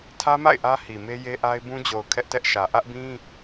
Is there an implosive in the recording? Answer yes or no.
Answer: no